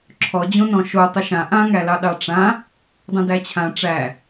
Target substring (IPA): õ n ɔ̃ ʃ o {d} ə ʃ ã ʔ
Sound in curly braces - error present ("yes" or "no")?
yes